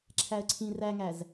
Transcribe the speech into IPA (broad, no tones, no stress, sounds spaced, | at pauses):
ǁʰ æ ə̯ ǀʰ ĩ r æ ŋ æ z